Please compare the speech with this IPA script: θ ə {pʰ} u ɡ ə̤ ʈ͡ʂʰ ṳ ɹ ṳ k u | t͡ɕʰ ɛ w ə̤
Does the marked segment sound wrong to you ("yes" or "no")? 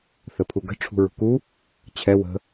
no